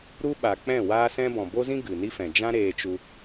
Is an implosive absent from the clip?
no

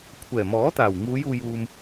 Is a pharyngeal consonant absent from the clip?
yes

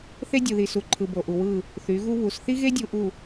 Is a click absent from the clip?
no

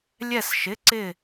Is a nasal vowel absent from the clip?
yes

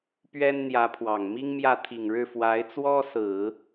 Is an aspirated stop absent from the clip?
no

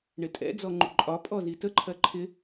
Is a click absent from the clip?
no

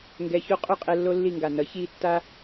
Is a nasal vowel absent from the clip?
yes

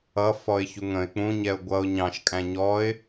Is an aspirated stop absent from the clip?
yes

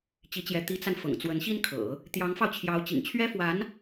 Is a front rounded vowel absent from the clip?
yes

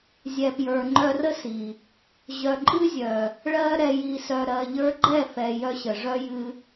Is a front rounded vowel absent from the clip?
no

